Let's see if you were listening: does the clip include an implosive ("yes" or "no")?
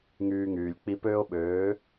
yes